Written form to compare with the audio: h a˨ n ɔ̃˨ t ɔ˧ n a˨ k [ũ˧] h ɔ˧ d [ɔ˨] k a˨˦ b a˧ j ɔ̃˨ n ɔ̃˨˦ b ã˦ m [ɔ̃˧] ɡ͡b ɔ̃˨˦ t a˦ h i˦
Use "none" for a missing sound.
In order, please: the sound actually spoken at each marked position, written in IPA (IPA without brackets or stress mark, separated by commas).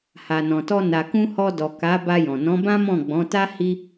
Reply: ũ˧, ɔ˨, ɔ̃˦˨